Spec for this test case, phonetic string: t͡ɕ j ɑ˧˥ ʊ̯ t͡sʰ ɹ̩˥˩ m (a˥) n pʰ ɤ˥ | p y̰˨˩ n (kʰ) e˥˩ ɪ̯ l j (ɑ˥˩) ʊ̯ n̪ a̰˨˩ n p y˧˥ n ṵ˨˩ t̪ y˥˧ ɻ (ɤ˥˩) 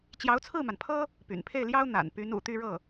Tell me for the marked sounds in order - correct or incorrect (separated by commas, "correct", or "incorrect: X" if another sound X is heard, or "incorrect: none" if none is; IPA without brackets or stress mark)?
incorrect: a˩, incorrect: pʰ, incorrect: ɑ˥, correct